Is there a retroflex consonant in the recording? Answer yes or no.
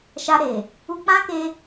no